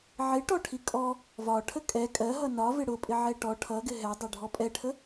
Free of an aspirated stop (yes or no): no